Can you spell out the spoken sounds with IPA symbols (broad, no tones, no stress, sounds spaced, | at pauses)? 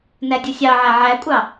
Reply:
n æ dʲ ɯ sʲ ɑ ʕ æ ʕ æ kʷʼ ɑ